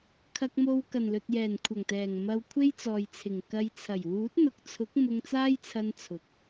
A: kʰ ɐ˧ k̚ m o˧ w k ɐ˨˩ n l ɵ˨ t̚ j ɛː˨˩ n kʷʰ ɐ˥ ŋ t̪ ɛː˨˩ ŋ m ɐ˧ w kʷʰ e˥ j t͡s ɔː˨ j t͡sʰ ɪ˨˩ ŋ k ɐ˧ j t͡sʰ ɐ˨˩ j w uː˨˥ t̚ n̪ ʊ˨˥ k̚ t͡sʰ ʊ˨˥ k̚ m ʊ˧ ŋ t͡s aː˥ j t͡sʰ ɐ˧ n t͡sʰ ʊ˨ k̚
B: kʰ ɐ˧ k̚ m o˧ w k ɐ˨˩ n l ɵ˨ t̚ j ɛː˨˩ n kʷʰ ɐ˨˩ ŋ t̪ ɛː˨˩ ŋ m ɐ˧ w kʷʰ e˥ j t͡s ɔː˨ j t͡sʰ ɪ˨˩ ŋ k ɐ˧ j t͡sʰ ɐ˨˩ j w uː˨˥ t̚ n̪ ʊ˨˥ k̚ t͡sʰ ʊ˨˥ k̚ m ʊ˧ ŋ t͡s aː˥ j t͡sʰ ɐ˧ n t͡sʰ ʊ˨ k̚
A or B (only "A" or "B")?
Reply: B